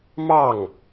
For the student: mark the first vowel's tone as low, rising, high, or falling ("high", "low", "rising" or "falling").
falling